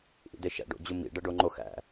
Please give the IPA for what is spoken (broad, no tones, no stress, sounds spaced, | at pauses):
ʔ ḭ d e ʃ æ̰ ɖ o̰ d͡ʑ u m ḭ ɖ æ ɖ o ŋ͡ǃ o x æ̰